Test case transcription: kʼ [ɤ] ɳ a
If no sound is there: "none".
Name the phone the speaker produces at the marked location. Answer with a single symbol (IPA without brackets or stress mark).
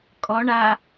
ɔ